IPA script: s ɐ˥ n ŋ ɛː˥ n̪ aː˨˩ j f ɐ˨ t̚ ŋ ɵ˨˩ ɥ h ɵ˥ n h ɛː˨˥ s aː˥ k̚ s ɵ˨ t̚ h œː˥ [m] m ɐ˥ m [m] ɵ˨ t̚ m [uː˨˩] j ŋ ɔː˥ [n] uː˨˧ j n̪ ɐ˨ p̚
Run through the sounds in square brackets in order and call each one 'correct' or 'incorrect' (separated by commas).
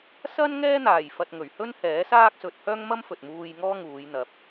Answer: incorrect, incorrect, incorrect, incorrect